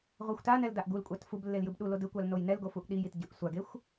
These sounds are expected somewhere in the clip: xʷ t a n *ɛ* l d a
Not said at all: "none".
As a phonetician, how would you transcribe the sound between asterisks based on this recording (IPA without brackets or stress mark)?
ɛ